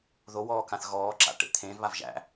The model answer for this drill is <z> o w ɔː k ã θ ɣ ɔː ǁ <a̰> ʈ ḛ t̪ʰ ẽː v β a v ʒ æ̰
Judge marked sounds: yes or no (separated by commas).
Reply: no, yes